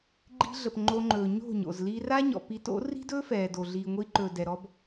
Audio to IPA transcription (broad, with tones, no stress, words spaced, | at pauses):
ɡ͡ǃi̤˧ɮə˨p ŋ͡ǃo˧ŋ͡ǃɵː˨ ɲo̤˦˨ɲo̰˨z li˧ra˦ ɲɔ̰˨pi˨˦to̰˨˦ ri̤˦dɵː˦ fɛː˨do˨ ɮiː˨ŋʷi˧ǃɵː˨ dɛ˨ɾɔ˦b